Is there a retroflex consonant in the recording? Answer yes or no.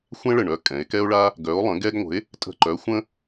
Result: yes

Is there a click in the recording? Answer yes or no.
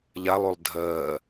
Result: no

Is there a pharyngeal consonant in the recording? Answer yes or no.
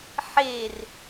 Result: yes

